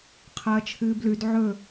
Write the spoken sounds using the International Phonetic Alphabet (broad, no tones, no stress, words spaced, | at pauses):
qʰɐːt͡ʃʰɨːblʉd ʕɵ